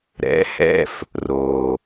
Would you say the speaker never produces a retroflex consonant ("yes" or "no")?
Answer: yes